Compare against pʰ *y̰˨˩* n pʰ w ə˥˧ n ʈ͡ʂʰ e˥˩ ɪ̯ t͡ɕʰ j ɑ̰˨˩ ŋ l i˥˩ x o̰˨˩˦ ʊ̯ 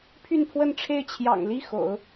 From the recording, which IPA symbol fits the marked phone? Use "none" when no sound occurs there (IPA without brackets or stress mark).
y˥˧